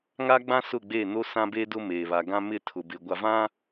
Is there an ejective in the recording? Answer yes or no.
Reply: no